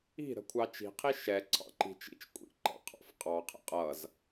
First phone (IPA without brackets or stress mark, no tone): i̤